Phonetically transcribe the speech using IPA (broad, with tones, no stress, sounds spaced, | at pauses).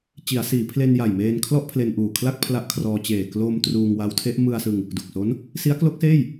t͡ɕ i˩˦ a̯ s iː˩˦ pʰ l e˧ n j a˨˩ j m eː˧ n kʰ l ɔ˥˩ ʔ pʰ l e˧ n ʔ uː˨˩ kʰ l a˥˩ k̚ pʰ l a˦˥ ʔ kʰ r ɔː˧ t͡ɕ eː˨˩ k l o˧ m t r uː˧ ŋ w a˦˥ w tʰ e˦˥ ʔ m ɯ˧ a̯ s ɯ˧ ŋ | d u˨˩ k̚ s o˦˥ n | s i˦˥ a̯ k l o˦˥ k̚ s eː˥˩ j